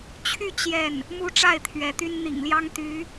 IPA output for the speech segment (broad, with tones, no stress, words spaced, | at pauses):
t͡ɕʰy˥˧ t͡ɕjɛ˥˩n | mu˥ʈ͡ʂa˥˩ɪ̯ t̪ʰɥɛ˧˥t̪y˥n n̪ḭ˨˩ŋljɑ˥ŋ t̪y˧˥